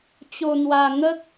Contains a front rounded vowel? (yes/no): no